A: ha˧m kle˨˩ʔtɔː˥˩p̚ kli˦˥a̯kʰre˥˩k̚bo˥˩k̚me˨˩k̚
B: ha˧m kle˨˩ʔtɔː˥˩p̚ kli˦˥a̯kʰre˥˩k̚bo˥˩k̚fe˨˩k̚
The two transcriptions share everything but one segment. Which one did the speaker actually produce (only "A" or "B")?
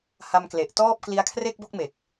A